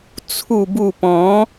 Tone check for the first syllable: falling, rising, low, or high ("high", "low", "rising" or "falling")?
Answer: low